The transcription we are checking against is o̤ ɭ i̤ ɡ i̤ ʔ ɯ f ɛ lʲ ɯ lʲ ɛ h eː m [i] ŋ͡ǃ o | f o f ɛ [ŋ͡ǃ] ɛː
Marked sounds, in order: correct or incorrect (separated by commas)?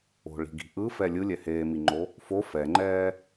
correct, correct